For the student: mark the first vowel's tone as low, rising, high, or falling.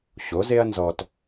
rising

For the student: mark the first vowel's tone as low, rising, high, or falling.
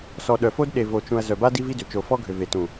low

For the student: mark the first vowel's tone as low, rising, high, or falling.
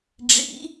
rising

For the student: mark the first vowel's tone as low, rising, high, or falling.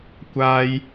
high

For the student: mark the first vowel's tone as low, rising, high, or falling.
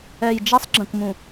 low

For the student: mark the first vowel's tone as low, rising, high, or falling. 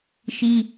high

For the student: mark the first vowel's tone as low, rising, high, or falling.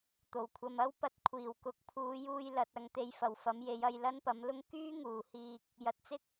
low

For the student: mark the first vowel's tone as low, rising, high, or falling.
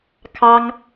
high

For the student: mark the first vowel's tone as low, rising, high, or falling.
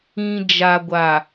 low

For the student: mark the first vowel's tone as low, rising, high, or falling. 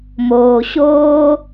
low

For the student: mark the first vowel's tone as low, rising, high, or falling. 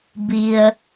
low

